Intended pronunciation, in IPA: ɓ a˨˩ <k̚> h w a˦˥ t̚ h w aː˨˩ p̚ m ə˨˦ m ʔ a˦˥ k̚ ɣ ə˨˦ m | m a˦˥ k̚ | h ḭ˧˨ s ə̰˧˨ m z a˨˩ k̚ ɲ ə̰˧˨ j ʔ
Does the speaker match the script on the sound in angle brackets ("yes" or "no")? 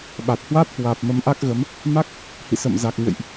no